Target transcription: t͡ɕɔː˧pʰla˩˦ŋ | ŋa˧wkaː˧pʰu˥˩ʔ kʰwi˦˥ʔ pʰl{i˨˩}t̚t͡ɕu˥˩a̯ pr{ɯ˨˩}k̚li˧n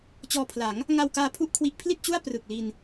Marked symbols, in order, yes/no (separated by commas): no, yes